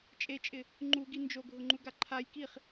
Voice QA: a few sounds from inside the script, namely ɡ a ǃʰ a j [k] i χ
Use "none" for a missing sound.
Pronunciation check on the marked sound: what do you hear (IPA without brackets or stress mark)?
k